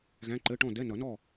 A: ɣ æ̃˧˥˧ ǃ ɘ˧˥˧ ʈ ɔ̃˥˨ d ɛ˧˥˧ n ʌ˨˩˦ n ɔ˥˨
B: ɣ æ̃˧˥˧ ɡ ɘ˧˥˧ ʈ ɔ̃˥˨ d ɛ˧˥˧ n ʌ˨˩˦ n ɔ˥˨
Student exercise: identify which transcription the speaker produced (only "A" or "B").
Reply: A